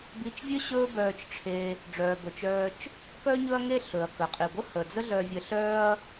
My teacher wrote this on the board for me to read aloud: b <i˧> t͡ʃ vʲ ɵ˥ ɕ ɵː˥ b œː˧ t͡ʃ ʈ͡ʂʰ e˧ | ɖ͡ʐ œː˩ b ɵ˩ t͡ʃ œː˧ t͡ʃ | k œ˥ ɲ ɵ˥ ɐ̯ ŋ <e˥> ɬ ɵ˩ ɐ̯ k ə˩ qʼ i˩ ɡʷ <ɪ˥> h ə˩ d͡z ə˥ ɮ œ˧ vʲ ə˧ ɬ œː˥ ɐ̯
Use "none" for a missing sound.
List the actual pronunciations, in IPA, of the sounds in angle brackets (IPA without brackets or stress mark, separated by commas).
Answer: i˧, e˥, ə˥